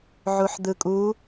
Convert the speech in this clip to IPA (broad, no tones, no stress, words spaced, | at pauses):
ʕuħd̪ɯkʼu